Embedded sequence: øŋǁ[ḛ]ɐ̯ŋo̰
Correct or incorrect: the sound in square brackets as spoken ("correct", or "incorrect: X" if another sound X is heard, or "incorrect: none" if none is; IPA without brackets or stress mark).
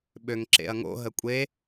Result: correct